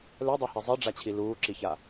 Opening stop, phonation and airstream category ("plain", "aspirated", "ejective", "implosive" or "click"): plain